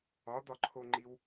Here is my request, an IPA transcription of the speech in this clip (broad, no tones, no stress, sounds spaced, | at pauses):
ɒ d̪ ɒ ǃʰ o ŋ͡ǃ i w